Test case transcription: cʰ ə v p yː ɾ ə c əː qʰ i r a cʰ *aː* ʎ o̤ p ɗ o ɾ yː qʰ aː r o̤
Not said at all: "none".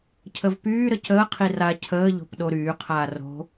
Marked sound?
əː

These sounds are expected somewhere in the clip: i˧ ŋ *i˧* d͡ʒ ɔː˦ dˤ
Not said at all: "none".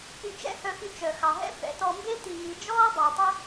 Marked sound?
i˧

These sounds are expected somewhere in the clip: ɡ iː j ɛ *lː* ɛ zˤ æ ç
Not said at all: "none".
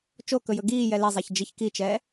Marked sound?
l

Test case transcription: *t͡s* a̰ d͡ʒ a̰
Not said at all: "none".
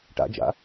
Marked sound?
ʈ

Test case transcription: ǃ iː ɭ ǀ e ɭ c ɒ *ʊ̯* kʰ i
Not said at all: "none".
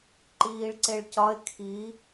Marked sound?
ɪ̯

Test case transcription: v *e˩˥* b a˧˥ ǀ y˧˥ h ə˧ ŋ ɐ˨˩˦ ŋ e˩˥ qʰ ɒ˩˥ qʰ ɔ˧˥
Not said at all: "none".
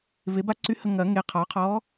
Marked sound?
e˩˥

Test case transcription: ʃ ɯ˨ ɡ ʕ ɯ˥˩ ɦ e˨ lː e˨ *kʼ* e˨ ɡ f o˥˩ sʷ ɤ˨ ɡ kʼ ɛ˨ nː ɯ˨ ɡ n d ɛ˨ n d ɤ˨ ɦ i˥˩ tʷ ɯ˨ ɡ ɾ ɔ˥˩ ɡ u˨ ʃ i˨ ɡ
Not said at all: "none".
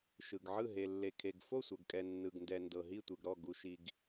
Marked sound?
kʰ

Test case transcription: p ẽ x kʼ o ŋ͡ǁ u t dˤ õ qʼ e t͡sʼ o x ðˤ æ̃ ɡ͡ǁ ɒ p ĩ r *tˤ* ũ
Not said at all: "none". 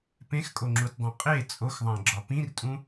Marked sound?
tʼ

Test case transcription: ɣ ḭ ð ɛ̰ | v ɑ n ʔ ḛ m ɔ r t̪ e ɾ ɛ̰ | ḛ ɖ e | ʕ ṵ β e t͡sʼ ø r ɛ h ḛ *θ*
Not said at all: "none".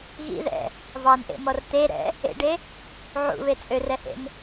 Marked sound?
n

